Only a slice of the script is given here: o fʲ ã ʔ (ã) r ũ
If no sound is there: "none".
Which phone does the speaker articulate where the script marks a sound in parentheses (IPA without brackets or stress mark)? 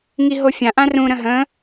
ã